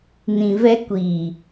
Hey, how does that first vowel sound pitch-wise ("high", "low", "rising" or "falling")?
low